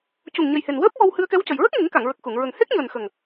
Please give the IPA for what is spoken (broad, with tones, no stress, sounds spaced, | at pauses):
c u˨˩ ŋ ɲ ə˨˩ j h e˨˩ n w əː˦˥ p̚ w ɔ˧ w h ɨ˧ ə̯ k ɛ˧˥ w c ə˨˩ j ɹ ə˦˥ k̚ ŋ i˨˩˦ ŋ k a˨˩˨ ŋ ɹ ə˨˩ k̚ x u˨˩˨ ŋ ɹ ə˨˩ ŋ h e˦˥ k̚ ɲ əː˨˩ n x ə˨˩ ŋ